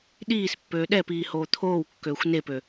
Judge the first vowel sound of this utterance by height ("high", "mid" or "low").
high